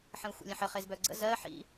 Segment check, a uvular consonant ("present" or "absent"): present